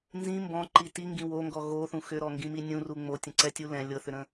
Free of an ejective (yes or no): yes